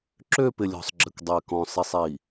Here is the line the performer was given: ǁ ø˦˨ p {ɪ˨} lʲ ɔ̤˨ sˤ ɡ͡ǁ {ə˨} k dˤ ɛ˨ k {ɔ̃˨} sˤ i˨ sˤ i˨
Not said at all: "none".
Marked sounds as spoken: ɪ˨, ə˨, ɔ̃˨

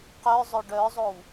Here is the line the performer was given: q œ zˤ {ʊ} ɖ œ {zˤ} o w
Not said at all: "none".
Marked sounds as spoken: ʊ, zˤ

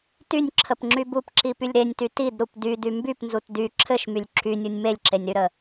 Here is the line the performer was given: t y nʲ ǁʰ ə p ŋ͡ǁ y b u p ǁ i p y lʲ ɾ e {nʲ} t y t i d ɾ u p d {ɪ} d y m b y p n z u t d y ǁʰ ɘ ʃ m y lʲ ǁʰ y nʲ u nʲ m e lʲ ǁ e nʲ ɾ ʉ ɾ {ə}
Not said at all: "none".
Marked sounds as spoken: nʲ, y, ə

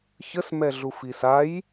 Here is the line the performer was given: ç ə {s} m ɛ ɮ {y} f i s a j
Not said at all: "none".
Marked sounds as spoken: s, u

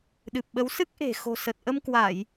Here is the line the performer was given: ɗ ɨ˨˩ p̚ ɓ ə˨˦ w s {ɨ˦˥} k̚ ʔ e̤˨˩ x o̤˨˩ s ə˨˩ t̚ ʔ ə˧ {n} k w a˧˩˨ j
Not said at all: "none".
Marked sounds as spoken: ɨ˦˥, m

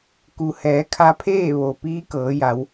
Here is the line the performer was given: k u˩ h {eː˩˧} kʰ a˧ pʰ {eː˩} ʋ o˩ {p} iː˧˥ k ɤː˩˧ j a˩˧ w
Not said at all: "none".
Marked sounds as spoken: ɛː˩˧, eː˥˨, p

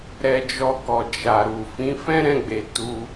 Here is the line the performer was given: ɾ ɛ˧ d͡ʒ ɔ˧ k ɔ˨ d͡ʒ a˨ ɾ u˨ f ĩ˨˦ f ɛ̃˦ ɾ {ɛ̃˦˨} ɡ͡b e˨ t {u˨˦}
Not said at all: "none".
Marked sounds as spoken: ɛ̃˦˨, u˧

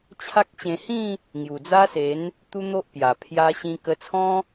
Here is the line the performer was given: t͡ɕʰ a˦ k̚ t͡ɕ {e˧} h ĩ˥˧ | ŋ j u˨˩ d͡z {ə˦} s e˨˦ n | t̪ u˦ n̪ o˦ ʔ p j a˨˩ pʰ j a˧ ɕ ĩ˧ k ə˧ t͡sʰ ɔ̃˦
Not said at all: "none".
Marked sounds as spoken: ẽ˧, a˦

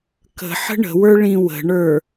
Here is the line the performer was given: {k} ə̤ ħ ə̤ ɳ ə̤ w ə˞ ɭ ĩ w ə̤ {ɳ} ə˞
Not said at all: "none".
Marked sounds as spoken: k, ɳ

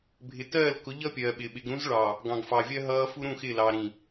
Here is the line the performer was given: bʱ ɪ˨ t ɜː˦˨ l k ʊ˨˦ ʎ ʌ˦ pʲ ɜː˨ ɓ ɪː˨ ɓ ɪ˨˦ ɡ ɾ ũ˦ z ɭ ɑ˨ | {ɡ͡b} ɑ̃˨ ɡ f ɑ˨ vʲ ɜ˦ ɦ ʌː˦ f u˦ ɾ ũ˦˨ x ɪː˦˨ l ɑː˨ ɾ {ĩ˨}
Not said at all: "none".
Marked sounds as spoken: ɡ, ĩ˨

